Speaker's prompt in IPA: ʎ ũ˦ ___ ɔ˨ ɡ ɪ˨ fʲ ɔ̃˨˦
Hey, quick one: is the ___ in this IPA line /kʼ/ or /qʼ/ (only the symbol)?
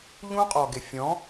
qʼ